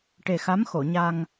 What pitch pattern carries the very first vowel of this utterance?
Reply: low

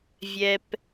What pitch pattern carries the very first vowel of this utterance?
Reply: low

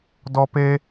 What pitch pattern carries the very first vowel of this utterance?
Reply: high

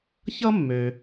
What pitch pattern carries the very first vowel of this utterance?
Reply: high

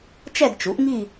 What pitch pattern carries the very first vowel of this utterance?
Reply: falling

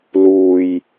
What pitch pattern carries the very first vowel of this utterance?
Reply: low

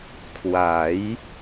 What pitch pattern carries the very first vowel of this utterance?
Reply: rising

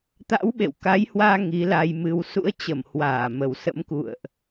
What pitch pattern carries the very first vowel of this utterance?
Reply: rising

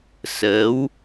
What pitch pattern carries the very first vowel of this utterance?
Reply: rising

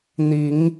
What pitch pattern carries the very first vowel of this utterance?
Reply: rising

